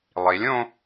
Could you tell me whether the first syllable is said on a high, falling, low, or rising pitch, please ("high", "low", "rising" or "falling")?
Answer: rising